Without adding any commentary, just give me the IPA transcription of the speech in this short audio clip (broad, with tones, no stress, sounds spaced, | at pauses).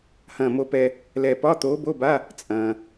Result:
h ɐ̃ː˧˩ m o˧ p ɛ˧ | l ɛ˧˩ p ɒ˧˥˧ t̪ oː˧˥ b o˧˥˧ b a˧˥˧ | t͡sʼ ɐ̃ː˩